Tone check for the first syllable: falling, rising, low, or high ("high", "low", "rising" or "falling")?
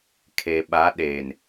low